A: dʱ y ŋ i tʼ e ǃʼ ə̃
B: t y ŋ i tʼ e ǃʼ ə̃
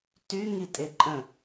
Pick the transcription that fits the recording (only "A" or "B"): B